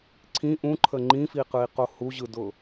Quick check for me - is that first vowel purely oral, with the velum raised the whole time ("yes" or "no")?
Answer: no